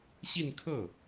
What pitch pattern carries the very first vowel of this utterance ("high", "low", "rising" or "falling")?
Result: falling